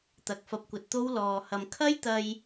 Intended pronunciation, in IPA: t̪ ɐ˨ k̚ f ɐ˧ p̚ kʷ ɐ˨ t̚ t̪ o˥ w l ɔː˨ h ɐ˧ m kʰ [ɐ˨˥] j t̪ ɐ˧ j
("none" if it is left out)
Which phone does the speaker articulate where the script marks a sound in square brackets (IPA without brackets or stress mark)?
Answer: ɐ˥